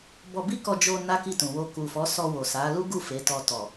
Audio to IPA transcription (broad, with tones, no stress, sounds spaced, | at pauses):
b ɔ˧ b i˦ k ɔ˧ d͡ʒ o˧ n a˦ k i˦˨ t ũ˨ w o˧ k u˨ f ɔ˨˦ s ɔ˧ w o˨ s a˨˦ l u˦ ɡ u˦˨ f e˨˦ t ɔ˧ t ɔ˨